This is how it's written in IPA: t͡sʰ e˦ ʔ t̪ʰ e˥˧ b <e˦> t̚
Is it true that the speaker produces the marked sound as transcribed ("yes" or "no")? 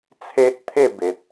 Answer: no